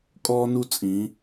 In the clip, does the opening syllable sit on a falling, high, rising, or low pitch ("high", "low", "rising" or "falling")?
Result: high